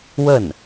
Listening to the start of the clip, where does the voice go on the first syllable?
falling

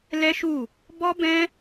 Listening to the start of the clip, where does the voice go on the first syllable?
high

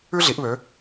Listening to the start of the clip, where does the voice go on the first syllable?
high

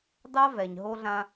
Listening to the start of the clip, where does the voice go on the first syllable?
high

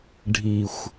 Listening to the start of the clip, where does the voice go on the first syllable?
low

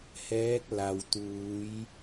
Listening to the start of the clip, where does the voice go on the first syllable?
rising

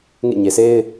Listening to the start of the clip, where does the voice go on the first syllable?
falling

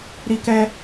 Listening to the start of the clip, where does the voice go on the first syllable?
high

